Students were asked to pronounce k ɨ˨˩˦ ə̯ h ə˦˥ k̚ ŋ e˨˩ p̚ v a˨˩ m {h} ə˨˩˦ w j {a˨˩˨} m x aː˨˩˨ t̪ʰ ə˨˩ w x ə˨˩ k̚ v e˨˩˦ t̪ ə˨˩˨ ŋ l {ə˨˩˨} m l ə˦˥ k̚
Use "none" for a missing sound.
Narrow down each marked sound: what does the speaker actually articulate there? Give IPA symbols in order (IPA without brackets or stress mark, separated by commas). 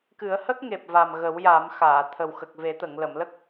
ɣ, a˨˩˦, ə˨˩˨